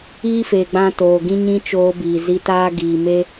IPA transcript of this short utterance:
iː˦feː˨ɡ͡bã˧ toː˨ɡĩ˦ɲĩ˦ t͡ʃoː˧biː˨ zi˧taː˦ ɡiː˨me˦

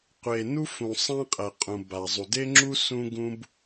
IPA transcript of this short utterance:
qʷe˩nu˥fũ˩ sˤã˥qʼɛ˩qʼũ˩ ba˩zˤu˩de˥ŋ͡ǁu˥ sũ˥ɡũ˥b

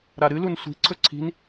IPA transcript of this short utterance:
ɾaɾɨlun sʷi̤ǀʰɵ ǀʰi̤n

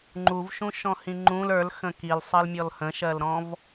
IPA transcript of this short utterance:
ŋ͡ǃuvʃũʃɔ̃hĩ ŋ͡ǃũl ə˞lxə̃ kilsˤɜlmʲɔl hə̃ʃɜlɾɔ̃v

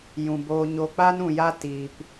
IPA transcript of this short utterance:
jũ˨boː˧ɲo˧k͡pa˦n ũ˧ja˦ tiː˧p

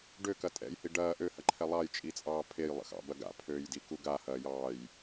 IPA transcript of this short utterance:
ɖøkɐ tʼɛ̰jhi ɖɐː ʔøhɐǃʰɛ lˠɑjt͡ʃʼit͡sʼɑː pʰejlˠə̰xɑ̰bɐ ɡa̰pʰøːjdiku ɡahɐːjɑːj

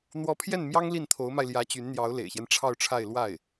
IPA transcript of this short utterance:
n̪wɔ˧˥pʰjɛ˥˩n mjɑ˥ŋli˥˩nt̪ʰo˧˥ʊ̯ma˧ɪ̯ ljä˧˥t͡ɕy˧˥nn̪jɑ˧˥ʊ̯ lḛ˨˩ɪ̯ɕjɛ˦n ʈ͡ʂʰɑ˥˧ʊ̯ʈ͡ʂʰa˥˧ɪ̯ lwa˥˩ɪ̯

